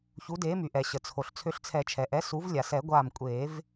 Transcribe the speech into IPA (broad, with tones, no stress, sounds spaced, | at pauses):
ç u˨˥ d eː˨˥ m y˩ ʔ ɛ˩ ɕ ə˩ t͡sʰ o˩ ɬ t͡sʰ ø˧ ɬ t͡sʰ ɛ˨˩˦ t͡ʃʰ ɛ˩ ʔ ɛ˨˥ s u˨˥ v lʲ a˩ s ɛ˨˩˦ ɡʷ aː˧˩ m kʷʼ eː˨˩˦ v